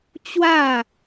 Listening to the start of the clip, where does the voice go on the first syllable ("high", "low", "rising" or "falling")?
falling